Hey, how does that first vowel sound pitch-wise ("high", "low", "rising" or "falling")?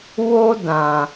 high